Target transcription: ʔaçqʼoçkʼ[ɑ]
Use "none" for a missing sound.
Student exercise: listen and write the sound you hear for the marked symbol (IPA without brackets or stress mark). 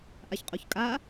a